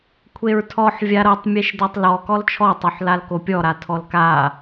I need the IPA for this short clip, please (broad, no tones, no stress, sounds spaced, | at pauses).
kʷʰ e ɹ tʰ ɔ ħ vʲ a ɾ ɤ tˤ mʲ e ʃ d ɤ tˤ l ɔ k ɔ l t͡ʃʰ ɔ tˤ o ħ l a l k o pʲ ɔ ɾ a tʰ ɔ l k a